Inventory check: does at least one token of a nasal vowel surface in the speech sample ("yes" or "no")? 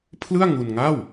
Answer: no